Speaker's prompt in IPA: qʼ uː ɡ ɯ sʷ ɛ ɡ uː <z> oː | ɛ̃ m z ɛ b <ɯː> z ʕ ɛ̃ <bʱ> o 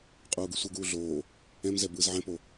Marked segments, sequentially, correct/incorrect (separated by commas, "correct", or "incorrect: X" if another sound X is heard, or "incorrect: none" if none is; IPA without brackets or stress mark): incorrect: ɮ, correct, incorrect: p